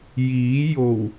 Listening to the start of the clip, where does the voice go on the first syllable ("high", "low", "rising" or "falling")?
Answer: rising